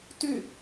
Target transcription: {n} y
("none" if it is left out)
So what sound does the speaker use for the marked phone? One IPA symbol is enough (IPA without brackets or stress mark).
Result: t